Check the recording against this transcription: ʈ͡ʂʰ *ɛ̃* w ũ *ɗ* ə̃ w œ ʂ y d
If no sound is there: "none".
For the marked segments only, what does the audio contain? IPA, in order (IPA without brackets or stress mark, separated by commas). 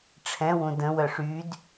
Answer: ɛ̃, d